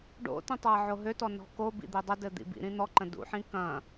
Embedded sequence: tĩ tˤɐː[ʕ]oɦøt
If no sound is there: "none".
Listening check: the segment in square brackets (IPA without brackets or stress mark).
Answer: ʕ